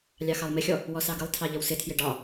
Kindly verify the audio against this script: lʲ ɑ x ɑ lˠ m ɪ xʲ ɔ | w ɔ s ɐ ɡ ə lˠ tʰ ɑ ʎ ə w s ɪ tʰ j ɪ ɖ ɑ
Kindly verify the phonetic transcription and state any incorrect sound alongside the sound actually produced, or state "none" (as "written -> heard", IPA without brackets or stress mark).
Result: ɐ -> ɑ